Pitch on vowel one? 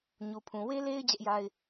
low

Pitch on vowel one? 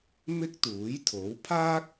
high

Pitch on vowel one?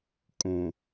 low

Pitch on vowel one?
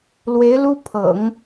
rising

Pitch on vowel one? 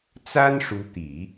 high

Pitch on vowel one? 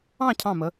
falling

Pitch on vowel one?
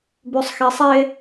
low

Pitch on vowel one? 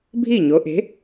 falling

